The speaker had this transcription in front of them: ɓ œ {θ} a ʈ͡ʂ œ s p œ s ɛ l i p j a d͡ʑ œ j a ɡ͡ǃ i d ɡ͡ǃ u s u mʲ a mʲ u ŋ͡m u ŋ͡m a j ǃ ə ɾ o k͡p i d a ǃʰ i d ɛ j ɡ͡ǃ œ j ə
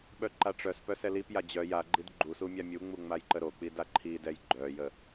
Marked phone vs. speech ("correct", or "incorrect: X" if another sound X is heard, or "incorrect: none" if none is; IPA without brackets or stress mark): incorrect: ǃ